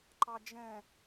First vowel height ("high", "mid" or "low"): low